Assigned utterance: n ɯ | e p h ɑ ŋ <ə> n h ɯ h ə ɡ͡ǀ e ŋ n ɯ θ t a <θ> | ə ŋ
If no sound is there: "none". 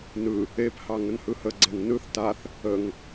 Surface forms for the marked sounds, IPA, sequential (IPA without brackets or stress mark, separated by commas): ə, θ